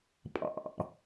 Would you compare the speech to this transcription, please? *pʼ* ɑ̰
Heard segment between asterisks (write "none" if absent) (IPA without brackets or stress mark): pʼ